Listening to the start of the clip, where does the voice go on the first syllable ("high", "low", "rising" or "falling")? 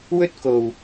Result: high